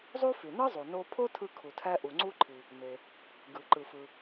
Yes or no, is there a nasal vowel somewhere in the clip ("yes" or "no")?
no